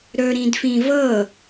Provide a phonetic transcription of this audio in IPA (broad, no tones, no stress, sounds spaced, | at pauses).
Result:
ɾ ɵ ɾ ĩ d f ĩ v ɤ